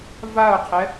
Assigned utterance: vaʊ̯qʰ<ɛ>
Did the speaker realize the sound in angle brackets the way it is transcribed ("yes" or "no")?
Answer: yes